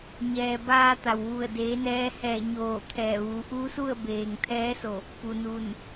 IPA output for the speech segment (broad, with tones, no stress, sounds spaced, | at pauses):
ɲ ɛː˩ b aː˧ t̪ a˩ w ʋ u˧˩ ə̯ d eː˩˧ n ɛː˧ h ɛː˧˩ ɲ oː˧˩ t̪ʰ ɛː˧˩ ʋ uː˩˧ ʔ uː˧˥ s u˥˨ ə̯ b eː˩ ŋ t̪ʰ ɛː˧˥ s o˧˩ | p u˩ n u˧˩ n